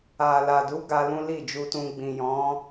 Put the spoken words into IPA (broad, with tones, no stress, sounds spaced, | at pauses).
a˨ l a˨ d u˨˦ ɡ a˧ l ũ˦ l i˦˨ d͡ʒ u˧ t ũ˧ ɡ͡b ĩ˨ j ɔ̃˨˦